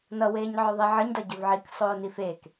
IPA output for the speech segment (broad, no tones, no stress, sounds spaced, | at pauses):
n ʌ w eː ɲ ʕ ɵ ðˤ i ʕ ə ɲ d ʌ ɟ ɵ v ʕ i k sˤ oː n i f eː k